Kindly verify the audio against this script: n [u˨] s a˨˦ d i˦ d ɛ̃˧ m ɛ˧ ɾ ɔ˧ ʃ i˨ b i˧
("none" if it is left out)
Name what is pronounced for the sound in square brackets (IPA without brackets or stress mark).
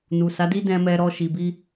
u˨